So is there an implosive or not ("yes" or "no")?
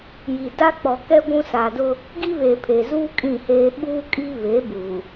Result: yes